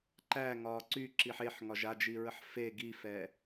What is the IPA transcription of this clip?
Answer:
ǃ æ ŋ ɒː ǀ y ǁ i ħ e ħ ŋ ɒ ʒ a d͡ʒ i ɹ ə ħ f e ɡ i f ɛ

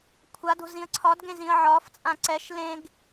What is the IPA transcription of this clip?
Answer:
kʷʰ a d o̤ z ĩ ə̯ ǀʰ ɒ d ɡ ẽ z ĩ ə̯ ʕ ɒ f t͡sʼ ã ǀ ɛ ʃ l ẽ ɡ

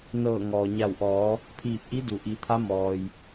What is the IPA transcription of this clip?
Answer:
n ɤː˧˩ ŋ ɔː˩ ɲ a˧˩ w ʔ ɔː˩˧ | pʰ iː˧˩ p̚ ʔ i˧˥ d u˩ ʔ i˩˧ t̪ʰ a˧˥ m ɔː˩ j

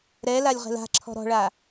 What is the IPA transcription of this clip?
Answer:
ɾ ɛ l a lʲ ʁ ɛ̤ l a̤ ǁʰ ɔ̤ ɾ ɔ̤ ɭ a

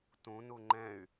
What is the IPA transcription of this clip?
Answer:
t ũ n u ŋ͡ǃ ɛ̃ y̯

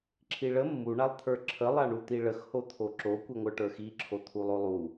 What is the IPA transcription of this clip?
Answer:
ǁʰ i ɭ ə mː u ɳ a lˠ t̪ʰ ə˞ ǁʰ ə lˠ a ɳ u t̪ i ɭ ə x h o t̪ʰ o ǁ o kʷ i ŋʷ ə˞ ʈ ə˞ x i ǁʰ o t̪ʰ u lˠ o lˠ u

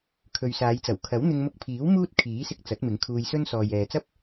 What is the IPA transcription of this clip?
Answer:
kʰ ɵ˨ ɥ s aː˨˧ j t͡s ɐ˨˩ w kʰ ɐ˨˥ w n̪ ɪ˧ ŋ m ʊ˧ k̚ pʰ iː˨˥ w m uː˥ t̚ kʰ iː˨˥ s ɪ˧ k̚ t͡s ɐ˨˥ t̚ m ɪ˨˥ ŋ kʰ uː˧ j s ɵ˥ n s ɔː˨ j ɛː˨ t͡s ɐ˥ p̚

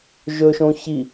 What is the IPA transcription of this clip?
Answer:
ʒ ɵ ʃ õ ç i

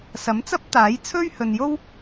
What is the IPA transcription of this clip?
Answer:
s ɐ˨˥ m t͡s ɐ˥ p̚ t̪ aː˨˥ j t͡sʰ ɵ˥ ɥ h ɵ˨ n j o˥ w

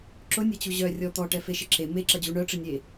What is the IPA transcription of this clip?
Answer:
ǁ ʊ nʲ ɛ t͡ɕ u ʑ œ rʲ ɔ t̪ ɔ ʈ ɛ f e ʃ ɪ ǁ e m e ǁ ɐ d͡ʑ u ɳ œ ʈ͡ʂ ɪ nʲ e

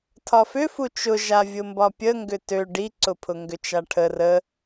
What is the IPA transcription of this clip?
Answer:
tʰ ɒ f ʏ f u t͡ʃ ʊ ʒ a vʲ ʊ m b ɒ pʲ ə ŋ ɡ ʏ t ø ɖ i ǀ ʊ pʰ ʊ ŋ ɡ ʏ t͡ʃ a ʈʰ ə r ə

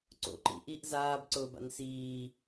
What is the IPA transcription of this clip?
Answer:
ǀ o̰ ǃ ḭ ʔ i ʔ z aː b ǀ ʊː b a̰ n s iː

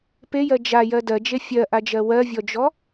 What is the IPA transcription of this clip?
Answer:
p e j ɜ d͡ʒ a j ɜ d ɜ d͡ʒ e fʲ ɜ ʔ a d͡ʒ ɜ w ɜ vʲ ɔ d͡ʒ ɔ

